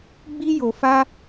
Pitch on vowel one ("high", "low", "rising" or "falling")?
high